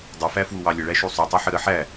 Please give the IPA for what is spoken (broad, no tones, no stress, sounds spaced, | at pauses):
dˤ u f æ f w u w ɑ lʲ ə ɭ æ ʃ u sˤ u tˤ o ħ ə ɾ ə ħ æ